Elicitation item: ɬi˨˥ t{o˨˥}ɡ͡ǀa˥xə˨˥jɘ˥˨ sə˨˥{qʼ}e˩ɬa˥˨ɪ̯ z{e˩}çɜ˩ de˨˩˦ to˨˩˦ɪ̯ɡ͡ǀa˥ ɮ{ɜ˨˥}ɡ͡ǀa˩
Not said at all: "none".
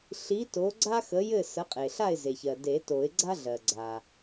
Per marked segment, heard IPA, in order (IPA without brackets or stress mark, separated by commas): o˨˥, qʼ, e˩, ɜ˩